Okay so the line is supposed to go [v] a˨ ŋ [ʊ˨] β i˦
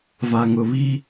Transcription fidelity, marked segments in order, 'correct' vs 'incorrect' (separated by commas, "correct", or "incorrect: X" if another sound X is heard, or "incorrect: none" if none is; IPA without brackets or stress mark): correct, correct